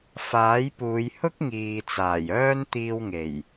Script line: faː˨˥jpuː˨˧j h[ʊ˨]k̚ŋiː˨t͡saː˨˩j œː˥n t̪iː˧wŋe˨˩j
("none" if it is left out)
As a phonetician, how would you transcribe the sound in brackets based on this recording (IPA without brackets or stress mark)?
ʊ˥